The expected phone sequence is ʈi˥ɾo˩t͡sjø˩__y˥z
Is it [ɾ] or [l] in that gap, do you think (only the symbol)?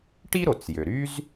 ɾ